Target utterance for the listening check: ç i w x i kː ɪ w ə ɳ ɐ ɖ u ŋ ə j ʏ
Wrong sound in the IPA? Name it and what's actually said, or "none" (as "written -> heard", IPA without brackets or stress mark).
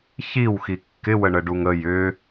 ɐ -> ə